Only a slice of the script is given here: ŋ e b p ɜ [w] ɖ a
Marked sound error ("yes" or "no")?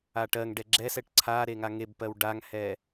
no